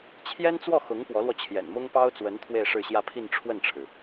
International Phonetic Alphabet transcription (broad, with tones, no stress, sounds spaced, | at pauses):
t͡ɕʰ j ɛ˥ n t͡s w ɔ˥˩ x ʊ˧˥ ŋ p w ɔ˧˥ l w ɔ˧ t͡ɕʰ j ɛ̰˨˩ n m ʊ˥ ŋ p ɑ˥ ʊ̯ t͡s w ə˧˥ n t̪ʰ w e˥˧ ɪ̯ ʂ ɻ̩˥˧ ɕ j ä˥˧ pʰ i˥˧ n ʈ͡ʂʰ w ə˥˩ n ʈ͡ʂʰ ɻ̩˩